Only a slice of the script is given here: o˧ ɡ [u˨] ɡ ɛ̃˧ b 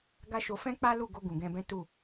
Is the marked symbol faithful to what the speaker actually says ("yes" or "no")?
no